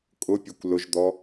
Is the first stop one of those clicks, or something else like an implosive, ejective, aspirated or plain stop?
ejective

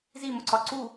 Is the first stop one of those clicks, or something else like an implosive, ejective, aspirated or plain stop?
click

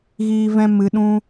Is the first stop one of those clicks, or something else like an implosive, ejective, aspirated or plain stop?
implosive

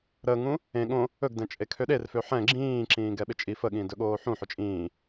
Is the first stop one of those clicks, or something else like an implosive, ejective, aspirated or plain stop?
implosive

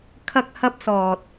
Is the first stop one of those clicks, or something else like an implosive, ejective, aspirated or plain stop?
aspirated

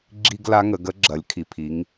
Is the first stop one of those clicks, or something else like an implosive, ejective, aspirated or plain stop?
click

